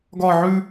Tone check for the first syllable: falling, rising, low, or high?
falling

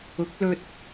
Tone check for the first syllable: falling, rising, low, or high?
rising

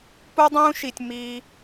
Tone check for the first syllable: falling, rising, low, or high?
high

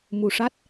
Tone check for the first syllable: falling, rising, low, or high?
low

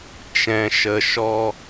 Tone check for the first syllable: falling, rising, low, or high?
low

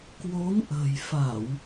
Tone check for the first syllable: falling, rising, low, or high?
rising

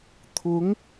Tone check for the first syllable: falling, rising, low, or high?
rising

